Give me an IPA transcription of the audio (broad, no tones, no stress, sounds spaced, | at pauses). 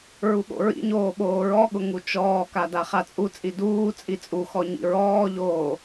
ɹ u ɠ o̰ ɹ ḭ ɲ oː ɓ oː ɹ ɔ ɠ ʊ ŋ u t͡ʃ ɔː k a d a χ a t͡sʼ u t͡sʼ i d uː t͡sʼ i t͡sʼ u x ɔ ɲ ḭ ɹ ɔː ʎ oː